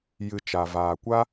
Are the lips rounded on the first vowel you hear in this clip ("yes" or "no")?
no